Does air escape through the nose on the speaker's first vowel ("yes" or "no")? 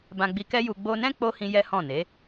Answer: yes